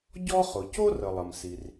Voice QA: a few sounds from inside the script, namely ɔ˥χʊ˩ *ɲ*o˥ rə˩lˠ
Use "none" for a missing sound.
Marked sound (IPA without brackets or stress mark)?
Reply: c